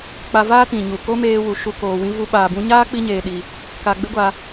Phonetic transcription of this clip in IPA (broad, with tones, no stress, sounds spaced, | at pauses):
k͡p a˧ v aː˦ t ĩ˨ ɲ u˨ k o˦ m eː˧ w u˨ ʃ u˧ k oː˨ w ĩ˧ v u˧ ɓ aː˨ b ũ˧ ɲ aː˦ k͡p i˧ ɲ eː˨ ɗ i˨ | k a˧ ɡ͡b e˦ ɡʷ a˧